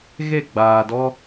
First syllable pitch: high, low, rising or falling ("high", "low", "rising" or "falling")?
falling